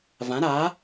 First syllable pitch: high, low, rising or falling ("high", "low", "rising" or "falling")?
rising